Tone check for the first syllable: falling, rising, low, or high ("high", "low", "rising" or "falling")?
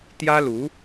high